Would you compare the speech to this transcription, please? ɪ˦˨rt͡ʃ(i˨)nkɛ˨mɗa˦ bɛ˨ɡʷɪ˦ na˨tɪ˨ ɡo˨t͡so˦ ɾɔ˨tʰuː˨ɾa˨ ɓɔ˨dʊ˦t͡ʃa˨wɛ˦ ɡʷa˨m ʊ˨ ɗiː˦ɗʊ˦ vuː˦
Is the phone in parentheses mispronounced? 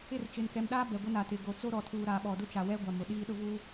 yes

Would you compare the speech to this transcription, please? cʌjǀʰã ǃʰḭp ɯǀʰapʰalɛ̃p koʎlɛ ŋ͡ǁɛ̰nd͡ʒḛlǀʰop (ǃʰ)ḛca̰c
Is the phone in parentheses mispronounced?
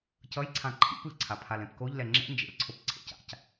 yes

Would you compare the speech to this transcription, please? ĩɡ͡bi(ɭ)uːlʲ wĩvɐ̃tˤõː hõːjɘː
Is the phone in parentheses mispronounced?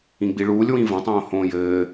no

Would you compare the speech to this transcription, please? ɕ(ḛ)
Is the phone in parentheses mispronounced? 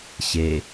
yes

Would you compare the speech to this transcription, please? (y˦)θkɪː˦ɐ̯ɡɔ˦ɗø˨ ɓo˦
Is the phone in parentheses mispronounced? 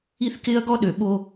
yes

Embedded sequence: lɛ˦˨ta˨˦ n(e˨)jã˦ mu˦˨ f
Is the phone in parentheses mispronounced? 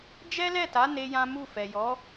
yes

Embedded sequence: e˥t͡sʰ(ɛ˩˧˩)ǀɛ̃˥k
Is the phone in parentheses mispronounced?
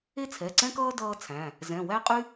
no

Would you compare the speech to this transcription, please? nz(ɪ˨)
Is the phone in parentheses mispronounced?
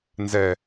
yes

